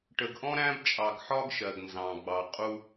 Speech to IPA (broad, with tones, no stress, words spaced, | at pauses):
ʈə˨ɡʔɔ̃˦ ɾæ̃˦bt͡ʃʼɑ˨ɡħɒ˦ɡ ʃɜ˨ɡnzɑ̃˨ɡ͡bɑ˨ qʼu˦